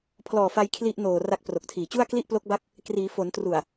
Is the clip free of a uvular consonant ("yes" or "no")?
yes